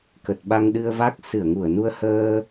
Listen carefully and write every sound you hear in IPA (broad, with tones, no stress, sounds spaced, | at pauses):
k ə˨˩ t̚ ɓ a˧ ŋ ɗ ɨ˧ ə̯ v a˦˥ k̚ s ɨ˧˩ ə̯ ŋ u˧˩ ə̯ n u˧ ə̯ h əː˧